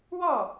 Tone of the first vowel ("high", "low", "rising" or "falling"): falling